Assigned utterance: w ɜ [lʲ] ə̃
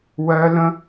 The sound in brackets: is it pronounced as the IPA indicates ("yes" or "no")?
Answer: no